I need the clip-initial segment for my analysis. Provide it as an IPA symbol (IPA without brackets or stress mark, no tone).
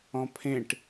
ɔ̃